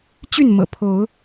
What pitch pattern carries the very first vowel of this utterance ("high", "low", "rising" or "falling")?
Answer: falling